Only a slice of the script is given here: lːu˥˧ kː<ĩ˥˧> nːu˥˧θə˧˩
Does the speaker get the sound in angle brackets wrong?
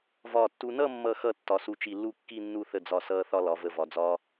yes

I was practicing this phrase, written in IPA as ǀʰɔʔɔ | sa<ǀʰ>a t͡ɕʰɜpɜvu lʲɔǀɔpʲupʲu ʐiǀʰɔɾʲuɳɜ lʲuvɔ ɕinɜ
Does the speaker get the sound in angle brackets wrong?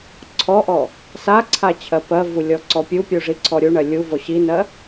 no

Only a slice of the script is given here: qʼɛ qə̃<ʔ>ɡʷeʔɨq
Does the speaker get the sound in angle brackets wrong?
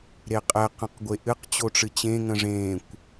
yes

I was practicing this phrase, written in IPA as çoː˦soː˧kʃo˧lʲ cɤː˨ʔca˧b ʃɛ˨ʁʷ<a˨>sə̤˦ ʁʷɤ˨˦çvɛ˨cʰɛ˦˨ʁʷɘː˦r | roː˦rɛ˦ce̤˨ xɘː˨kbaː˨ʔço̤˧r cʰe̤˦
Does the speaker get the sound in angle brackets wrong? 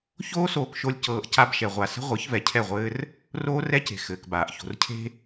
no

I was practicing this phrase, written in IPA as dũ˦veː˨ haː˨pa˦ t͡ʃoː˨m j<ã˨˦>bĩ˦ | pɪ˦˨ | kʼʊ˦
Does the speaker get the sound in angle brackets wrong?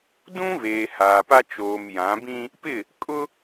no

